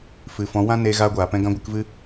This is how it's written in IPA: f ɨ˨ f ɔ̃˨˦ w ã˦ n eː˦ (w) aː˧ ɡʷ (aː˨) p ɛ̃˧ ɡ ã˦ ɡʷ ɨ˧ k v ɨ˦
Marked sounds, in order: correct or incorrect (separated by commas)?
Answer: incorrect, correct